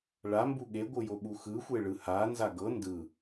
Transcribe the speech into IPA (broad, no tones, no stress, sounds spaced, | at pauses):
ɭ a m b u ɠ e ɡʷ ɯ j o ɓ u x ɯ xʷ e ɭ ɯ h a n z a ɡ ɤ n d ɯ